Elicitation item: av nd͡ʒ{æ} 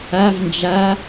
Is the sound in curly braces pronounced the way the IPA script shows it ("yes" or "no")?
no